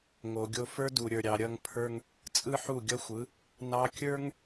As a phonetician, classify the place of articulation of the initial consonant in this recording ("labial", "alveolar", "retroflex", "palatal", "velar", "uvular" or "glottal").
velar